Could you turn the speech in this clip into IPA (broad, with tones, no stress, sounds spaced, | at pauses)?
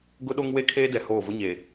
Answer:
ɡ ʊ˦ ɗ o˦ ŋ w e˦ kʰ eː˦ d ɛ˨ h oː˦˨ v ʊ˦ ɲ e˨